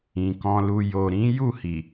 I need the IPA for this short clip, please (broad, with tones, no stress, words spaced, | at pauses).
ĩ˨kɔ̃˧lu˧ jo˨ ɾĩ˨˦ ju˦˨hi˨